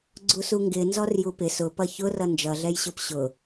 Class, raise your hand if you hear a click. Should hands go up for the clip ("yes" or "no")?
yes